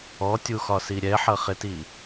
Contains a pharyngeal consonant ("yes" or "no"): yes